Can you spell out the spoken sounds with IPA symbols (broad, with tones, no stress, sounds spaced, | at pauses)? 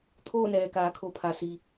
t̪ʰ oː˥˨ n ɛː˩ k aː˩˧ kʰ o˩˧ pʰ a˩ s i˩